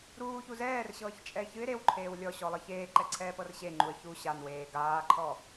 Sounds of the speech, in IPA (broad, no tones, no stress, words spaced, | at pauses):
ɾuːçu zɛːrɕɤːçt͡ʃʼɛɪ̯ çɨɪ̯ ɾewǃʰeːw lʲɔɕɔlˠɯ çeːǃɛǀʰɛːpɤr ɕeŋ͡ǃuə̯ çu ɕanweː ɡaːǃʰɔ